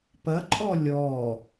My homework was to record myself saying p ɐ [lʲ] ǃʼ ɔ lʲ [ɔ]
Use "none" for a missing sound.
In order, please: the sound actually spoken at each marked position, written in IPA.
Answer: none, ɔ

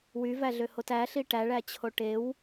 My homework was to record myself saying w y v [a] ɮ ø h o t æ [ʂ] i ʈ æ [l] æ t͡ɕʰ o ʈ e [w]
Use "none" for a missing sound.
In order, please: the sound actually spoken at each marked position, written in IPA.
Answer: æ, ɬ, ɭ, w

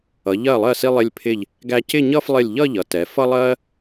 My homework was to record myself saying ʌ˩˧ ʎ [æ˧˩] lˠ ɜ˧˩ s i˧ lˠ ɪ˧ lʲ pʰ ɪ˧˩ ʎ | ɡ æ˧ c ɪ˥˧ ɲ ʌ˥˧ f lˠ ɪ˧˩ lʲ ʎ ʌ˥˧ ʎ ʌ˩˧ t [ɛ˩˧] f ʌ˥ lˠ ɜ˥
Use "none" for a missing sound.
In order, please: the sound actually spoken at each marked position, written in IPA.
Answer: ɜ˧˩, ɛ˩˧

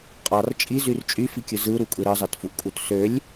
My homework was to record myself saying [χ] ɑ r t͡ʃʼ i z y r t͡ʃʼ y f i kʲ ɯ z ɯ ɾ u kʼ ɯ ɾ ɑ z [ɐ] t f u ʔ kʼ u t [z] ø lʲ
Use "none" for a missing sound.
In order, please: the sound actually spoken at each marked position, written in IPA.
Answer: qʼ, ɑ, s

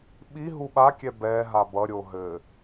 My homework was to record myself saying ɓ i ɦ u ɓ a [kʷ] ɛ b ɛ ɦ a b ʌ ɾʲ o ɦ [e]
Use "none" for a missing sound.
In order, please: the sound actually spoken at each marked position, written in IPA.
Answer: kʲ, ɘ

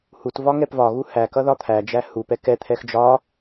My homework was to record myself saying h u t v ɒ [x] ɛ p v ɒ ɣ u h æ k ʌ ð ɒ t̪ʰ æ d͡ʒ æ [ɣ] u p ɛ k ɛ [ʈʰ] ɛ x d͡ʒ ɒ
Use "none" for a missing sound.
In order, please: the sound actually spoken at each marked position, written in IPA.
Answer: ŋ, h, t̪ʰ

